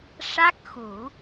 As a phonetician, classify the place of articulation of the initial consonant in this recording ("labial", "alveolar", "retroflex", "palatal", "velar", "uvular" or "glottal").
retroflex